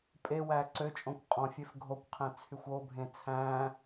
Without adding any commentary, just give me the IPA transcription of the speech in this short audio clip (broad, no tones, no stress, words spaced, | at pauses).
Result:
pʼewæ ǀøt͡ʃʼõkʷ qʼɔ̃ fʲefɡʱokʷqʰæ̃ t͡sʰyxʷobʱẽ t͡sʰæ̃